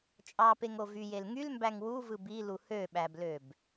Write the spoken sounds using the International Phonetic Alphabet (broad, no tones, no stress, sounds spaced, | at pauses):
t͡ʃʼ ɑ p e ŋ o v y j e l ŋ y l m b æ ŋ w u v ɯ b i l u h ø ɓ æ b l ø b